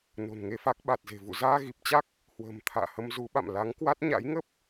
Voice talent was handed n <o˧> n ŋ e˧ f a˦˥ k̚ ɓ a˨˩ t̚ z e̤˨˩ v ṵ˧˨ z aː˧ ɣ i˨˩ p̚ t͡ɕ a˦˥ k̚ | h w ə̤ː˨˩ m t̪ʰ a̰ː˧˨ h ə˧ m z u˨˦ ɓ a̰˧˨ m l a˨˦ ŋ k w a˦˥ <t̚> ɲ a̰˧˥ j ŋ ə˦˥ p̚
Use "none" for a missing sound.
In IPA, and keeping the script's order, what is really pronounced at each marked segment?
o̤˨˩, t̚

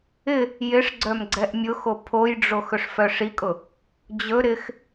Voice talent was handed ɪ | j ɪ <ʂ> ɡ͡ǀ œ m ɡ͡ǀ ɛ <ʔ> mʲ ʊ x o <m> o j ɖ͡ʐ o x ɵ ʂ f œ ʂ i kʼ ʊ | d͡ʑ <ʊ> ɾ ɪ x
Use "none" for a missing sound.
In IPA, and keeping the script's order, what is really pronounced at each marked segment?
ʂ, ʔ, pʰ, ɵ

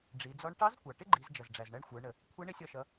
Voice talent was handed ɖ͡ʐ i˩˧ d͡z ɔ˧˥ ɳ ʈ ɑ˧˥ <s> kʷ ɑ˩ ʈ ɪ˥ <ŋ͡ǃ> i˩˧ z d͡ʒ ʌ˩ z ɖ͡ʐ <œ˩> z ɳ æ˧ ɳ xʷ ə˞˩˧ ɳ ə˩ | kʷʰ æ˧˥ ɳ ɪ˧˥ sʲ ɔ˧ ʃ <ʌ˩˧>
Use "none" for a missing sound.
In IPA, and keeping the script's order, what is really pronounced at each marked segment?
z, ɡ͡ǃ, æ˩, ʌ˩˧

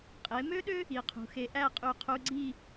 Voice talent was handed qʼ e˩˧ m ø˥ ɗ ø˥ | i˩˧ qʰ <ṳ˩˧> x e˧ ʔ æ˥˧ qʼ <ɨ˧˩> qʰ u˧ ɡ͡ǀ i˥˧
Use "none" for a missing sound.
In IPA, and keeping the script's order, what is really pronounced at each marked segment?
ṳ˩˧, y˧˩

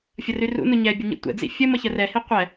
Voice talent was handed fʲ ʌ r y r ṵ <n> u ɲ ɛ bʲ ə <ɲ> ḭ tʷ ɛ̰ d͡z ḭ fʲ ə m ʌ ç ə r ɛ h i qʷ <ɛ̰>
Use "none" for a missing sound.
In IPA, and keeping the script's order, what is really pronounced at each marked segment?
n, ɲ, ɛ

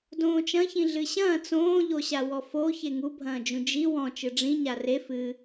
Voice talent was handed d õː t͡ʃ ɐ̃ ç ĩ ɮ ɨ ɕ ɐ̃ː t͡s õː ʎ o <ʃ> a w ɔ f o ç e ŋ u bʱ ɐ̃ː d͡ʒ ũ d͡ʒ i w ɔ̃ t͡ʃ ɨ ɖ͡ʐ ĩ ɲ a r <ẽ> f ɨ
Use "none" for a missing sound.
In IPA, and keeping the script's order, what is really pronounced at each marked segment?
ɕ, e

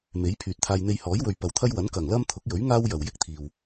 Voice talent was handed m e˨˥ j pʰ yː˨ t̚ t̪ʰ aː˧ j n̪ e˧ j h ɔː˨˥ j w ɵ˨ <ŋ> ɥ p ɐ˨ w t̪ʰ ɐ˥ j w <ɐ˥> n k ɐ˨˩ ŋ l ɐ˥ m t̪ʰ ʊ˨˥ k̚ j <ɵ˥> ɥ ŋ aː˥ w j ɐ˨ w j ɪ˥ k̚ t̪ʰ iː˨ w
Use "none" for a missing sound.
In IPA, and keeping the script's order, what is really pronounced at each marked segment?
none, ɐ˨˥, ɵ˨˥

